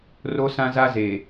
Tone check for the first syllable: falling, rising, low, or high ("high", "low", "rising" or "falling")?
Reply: high